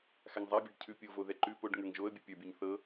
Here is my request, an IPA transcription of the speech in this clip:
x a ŋ zˤ a bʲ a ɖ cʰ ʉ pʲ o v o ð ɛ ǃ ʉ p o ɖ ŋ ə˞ ŋ ʒ o ə̯ bʲ o pʲ ə˞ bʲ o ɲ θ ɤ

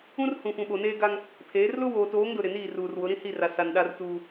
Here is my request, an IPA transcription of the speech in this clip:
ũ˦ r h ũ˨ f ũ˨ ɓ o˨ n eː˦ ɡ a˦ ŋ | pʰ eː˨˦ r l ʊ˦ w oː˨ t oː˨˦ ŋ d ʊ˨ ɾ ɪ˨ n iː˦˨ r uː˨ r w ʊ˨˦ ɾ ĩ˦ h i˦˨ r a˨ s a˨ n ɗ a˦ r t uː˦

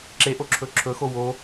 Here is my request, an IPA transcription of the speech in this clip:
ǁ e ʔ o ǁʰ ɵ ǁʰ ɵ x o w o

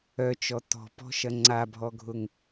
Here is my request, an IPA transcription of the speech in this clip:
œ t͡ʃ ɔ t ɔ̤ p ɔ̤ ʃ ɐ ŋ͡ǀ a bʱ ɔ ɡʱ ʊ ŋ

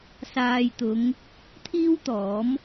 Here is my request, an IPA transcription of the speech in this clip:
s aː˨ j t̪ ʊ˨˧ ŋ | t̪ʰ iː˥ w t̪ ɔː˨˥ m

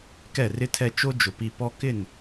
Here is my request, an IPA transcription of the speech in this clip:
k ɛ˦˨ r ɪ˦ tʰ ɛ˦ t͡ʃ o˦ d͡ʒ ʊ˨ p i˨ p ɔ˦ k ɪ˦˨ n

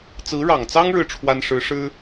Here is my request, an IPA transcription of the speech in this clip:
t͡s ɹ̩˧˥ ɻ ɑ˨˩ ŋ t͡s ɑ˥ ŋ ɻ ɻ̩˥˩ ʈ͡ʂʰ w a˥ n ʂ ɻ̩˧˥ ʂ ɻ̩˥

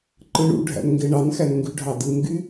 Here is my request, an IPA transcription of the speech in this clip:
ǃ ɯ ɳ ṵ ɖʱ æ̰ n ŋ ɡ e ɳ ɑ n x æ n ŋ ɡ y ɖʱ ɑ d ɯ n ɡ y

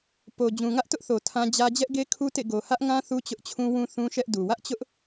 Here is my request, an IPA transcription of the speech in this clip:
p o˨ d͡ʑ ũ˨ ŋ ä˦ ʔ t ʊ˦ ʔ θ o˨ tʰ ã˦ d͡ʑ ä˦ d͡ʑ ɛ˦ ʔ ɡ e˦ kʰ u˦ t ḛ˦˨ ɡ o˨ h ä˦ ʔ ŋ ã˦ θ u˦ t͡ɕ ʊ˦ ʔ t͡ɕʰ ũ˦ w ũ˦ θ ũ˦ ʃ ɛ˦ ʔ d u˨ w ä˦ ʔ t͡ɕ ʊ˦ ʔ

